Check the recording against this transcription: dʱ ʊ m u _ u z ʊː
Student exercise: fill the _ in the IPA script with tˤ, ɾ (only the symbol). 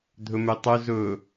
tˤ